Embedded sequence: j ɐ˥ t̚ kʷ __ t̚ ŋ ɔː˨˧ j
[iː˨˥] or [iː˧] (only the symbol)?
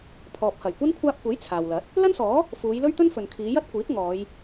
iː˨˥